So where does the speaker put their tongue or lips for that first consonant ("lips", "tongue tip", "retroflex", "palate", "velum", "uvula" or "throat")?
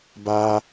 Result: lips